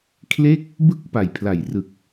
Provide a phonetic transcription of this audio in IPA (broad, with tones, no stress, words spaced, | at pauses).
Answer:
kʰle˥˩k̚ | bɯ˦˥k̚ pa˨˩jpʰla˨˩jrɯ˨˩k̚